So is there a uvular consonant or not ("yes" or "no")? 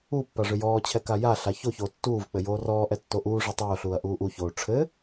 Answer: no